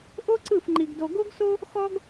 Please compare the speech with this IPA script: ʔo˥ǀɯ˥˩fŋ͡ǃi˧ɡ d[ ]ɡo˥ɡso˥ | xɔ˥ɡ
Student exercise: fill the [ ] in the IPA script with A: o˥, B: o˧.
B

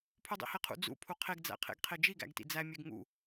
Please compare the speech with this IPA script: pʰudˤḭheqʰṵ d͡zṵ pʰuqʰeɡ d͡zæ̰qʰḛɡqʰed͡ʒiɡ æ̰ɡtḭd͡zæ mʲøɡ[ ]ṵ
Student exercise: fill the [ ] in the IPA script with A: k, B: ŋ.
B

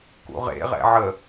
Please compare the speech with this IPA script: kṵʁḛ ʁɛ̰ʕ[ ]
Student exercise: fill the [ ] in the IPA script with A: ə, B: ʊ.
A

